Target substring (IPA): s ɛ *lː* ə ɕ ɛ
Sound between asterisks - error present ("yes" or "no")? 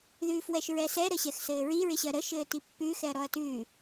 yes